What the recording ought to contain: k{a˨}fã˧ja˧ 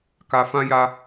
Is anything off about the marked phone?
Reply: no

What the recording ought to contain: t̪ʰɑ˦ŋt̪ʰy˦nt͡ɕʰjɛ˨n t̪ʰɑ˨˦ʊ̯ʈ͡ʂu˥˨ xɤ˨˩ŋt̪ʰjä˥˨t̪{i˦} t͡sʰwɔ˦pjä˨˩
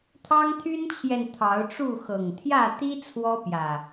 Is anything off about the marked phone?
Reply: no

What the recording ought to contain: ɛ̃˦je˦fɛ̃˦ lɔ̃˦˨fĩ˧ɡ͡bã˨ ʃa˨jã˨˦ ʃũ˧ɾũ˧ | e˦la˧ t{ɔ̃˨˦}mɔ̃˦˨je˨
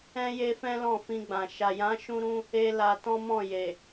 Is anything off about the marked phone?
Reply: yes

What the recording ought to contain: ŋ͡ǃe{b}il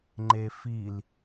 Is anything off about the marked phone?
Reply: yes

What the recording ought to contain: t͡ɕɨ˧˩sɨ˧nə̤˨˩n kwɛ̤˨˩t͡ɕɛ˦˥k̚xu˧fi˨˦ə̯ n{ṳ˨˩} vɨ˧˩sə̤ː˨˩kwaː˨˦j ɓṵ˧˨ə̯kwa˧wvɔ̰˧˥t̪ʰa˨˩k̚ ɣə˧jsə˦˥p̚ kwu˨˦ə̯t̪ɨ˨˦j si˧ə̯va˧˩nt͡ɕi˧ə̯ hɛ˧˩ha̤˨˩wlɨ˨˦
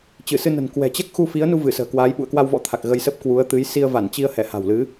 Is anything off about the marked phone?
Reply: yes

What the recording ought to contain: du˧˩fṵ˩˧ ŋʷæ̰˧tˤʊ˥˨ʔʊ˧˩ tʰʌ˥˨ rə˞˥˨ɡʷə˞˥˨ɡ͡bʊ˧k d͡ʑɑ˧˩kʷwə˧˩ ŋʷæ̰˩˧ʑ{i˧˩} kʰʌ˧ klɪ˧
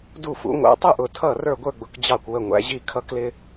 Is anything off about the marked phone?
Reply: no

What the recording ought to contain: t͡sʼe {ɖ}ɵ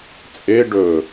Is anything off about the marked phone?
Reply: no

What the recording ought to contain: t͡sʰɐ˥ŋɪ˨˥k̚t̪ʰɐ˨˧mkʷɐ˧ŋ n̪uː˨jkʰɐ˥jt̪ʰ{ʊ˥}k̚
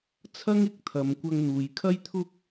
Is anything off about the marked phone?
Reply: no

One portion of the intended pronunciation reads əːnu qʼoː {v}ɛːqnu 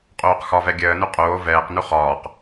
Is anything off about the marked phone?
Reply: no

